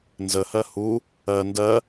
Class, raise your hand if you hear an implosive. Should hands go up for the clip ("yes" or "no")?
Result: no